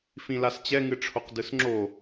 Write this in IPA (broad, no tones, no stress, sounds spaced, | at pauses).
f ĩ l a s t͡ɕ ɛ ŋ ɨ ʈ͡ʂʰ o q d ɯ s ŋ͡ǁ o